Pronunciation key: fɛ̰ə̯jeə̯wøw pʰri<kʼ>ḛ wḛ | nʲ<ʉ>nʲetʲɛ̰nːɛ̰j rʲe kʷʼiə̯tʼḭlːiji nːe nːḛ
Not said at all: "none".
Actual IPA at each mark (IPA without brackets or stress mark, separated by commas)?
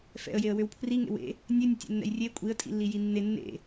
ŋ, ø